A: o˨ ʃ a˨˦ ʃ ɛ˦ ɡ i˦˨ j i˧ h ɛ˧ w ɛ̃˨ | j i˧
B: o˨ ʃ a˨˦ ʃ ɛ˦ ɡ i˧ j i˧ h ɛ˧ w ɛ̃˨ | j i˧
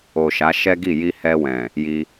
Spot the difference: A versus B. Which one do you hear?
A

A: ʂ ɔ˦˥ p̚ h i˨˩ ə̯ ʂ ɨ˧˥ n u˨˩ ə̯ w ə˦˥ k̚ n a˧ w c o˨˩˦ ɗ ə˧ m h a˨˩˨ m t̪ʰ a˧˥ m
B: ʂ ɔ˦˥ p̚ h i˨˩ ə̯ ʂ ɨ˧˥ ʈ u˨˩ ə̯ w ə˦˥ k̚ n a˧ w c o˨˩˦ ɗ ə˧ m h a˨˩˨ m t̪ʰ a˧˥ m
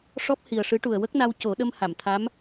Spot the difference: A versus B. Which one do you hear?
B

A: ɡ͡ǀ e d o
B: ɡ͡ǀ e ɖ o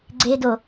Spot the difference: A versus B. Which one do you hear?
A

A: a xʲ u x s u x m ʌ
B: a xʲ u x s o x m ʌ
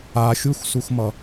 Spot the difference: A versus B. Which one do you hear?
A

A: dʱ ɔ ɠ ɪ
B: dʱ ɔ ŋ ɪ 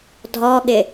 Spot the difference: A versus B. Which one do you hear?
A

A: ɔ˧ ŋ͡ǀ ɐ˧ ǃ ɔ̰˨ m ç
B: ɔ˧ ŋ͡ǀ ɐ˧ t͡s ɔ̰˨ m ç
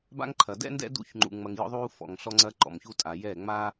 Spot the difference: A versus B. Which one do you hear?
A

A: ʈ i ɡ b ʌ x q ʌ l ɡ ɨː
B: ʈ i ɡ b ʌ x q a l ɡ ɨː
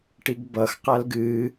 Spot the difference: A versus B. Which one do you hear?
B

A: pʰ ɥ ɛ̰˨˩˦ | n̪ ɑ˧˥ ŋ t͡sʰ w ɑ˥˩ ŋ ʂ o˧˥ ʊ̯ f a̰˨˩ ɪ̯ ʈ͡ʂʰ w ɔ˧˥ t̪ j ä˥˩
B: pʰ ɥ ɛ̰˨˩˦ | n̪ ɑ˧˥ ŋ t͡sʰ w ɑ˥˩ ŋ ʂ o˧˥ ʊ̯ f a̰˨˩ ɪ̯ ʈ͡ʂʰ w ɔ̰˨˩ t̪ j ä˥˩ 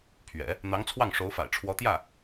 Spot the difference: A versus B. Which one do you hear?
A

